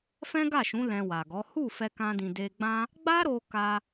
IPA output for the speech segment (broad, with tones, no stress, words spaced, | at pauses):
fɛ̃˦ɡa˦˨ʃũ˨˦ lɛ̃˧wa˨ɡɔ˨˦ hu˦˨ fɛ˧kã˧dĩ˨ de˧ɡ͡bã˦ | ɡ͡ba˦ɾo˧ ka˧